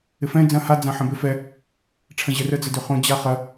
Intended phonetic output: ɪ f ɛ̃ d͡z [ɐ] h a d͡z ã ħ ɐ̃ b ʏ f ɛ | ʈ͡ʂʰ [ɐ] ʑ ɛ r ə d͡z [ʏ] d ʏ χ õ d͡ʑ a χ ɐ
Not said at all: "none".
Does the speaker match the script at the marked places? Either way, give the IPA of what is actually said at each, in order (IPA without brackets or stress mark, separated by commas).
ɐ̃, ɐ̃, ə